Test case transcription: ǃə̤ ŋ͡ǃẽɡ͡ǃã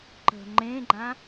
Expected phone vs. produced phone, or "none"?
none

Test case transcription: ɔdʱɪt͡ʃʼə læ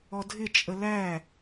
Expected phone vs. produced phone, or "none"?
none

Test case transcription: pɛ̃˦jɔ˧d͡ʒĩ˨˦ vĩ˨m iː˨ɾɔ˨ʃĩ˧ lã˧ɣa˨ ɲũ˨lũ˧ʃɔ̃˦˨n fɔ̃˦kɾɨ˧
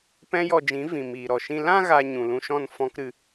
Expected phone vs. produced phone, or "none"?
none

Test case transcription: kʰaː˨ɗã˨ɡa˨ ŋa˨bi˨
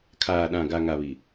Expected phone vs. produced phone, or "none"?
b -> β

